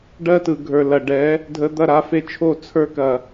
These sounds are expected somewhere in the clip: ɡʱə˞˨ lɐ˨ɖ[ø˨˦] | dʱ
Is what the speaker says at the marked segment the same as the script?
no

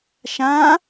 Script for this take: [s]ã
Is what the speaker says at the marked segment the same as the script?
no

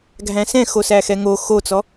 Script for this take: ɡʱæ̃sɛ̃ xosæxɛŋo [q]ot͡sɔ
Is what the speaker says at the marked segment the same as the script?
no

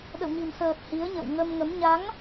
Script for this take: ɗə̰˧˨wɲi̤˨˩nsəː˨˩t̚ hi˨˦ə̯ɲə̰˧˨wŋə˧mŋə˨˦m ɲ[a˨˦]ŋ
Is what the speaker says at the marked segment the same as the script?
yes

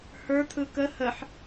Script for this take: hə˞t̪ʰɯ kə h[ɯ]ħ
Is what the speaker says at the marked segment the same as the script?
no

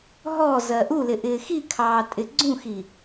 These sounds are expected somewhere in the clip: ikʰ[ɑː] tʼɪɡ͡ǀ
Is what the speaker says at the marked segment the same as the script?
yes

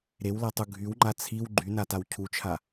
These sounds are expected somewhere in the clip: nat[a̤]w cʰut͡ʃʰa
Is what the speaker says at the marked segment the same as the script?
no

